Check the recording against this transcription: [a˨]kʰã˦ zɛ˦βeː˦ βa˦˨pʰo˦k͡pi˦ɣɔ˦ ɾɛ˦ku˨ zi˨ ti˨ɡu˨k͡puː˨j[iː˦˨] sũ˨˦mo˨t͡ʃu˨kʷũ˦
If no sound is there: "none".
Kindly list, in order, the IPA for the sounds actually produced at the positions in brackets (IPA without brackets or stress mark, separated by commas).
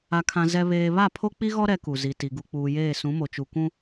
a˦, eː˦˨